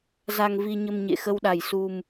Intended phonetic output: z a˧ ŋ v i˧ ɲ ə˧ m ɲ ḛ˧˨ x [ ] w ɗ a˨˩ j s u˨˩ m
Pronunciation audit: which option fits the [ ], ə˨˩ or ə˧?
ə˧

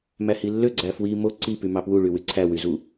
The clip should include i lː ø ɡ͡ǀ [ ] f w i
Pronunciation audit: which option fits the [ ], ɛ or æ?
æ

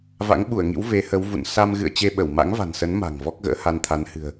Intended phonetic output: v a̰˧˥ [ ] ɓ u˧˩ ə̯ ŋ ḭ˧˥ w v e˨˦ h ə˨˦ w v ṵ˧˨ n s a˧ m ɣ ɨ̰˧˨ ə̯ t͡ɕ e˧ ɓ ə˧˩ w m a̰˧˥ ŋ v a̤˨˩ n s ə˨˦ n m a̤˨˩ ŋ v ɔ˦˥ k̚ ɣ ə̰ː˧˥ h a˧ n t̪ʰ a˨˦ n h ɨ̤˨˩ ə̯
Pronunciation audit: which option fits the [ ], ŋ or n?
ŋ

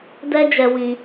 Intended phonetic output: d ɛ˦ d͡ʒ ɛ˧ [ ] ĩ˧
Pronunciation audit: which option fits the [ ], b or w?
w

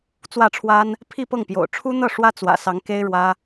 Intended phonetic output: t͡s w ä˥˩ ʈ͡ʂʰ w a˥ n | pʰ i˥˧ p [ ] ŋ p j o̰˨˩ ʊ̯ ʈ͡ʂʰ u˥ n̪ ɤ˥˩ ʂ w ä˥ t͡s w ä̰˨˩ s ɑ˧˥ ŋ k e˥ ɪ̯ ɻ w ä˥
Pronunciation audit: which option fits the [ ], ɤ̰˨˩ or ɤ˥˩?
ɤ˥˩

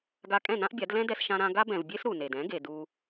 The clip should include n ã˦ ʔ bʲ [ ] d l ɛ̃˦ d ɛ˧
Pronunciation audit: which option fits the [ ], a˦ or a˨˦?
a˨˦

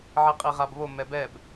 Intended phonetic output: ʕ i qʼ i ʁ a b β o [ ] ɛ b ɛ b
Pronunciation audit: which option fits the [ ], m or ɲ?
m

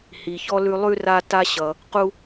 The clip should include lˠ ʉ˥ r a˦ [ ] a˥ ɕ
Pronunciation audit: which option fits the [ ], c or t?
t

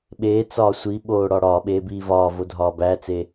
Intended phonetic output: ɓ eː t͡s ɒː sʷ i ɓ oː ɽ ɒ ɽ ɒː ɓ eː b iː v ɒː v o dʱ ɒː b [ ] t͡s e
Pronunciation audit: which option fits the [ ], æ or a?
æ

